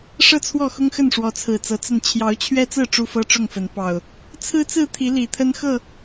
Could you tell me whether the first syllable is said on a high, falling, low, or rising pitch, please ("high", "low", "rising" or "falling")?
falling